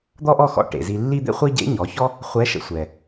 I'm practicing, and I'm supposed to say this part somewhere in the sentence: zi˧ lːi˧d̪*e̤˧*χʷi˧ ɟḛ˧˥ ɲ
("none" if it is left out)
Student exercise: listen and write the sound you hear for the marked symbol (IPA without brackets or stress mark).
ḛ˧